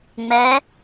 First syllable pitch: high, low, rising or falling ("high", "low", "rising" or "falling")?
rising